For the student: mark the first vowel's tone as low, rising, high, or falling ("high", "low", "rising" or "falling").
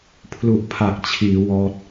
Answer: low